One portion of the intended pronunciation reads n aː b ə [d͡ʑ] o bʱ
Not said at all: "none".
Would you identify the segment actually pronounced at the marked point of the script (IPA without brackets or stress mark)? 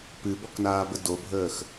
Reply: d